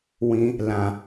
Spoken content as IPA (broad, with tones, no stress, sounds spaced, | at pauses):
w ĩ˧ | l ã˨